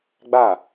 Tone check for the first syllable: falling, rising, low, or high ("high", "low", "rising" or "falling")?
falling